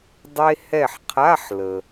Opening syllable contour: high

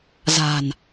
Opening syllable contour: low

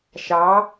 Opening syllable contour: rising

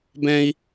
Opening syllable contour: high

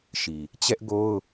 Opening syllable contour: low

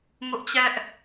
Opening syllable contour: high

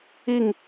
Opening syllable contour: falling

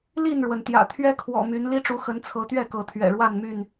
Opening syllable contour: falling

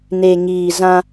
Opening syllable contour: low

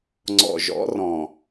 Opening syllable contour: low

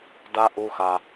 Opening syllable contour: high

